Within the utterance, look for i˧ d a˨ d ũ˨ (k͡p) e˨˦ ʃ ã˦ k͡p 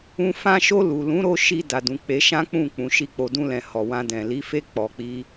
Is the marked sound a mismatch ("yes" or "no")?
no